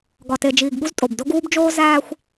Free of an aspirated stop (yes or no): yes